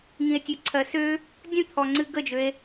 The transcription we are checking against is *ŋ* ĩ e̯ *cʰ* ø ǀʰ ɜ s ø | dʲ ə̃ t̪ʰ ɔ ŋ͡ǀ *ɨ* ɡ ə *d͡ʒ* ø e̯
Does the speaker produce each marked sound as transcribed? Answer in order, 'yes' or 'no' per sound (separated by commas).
yes, no, yes, yes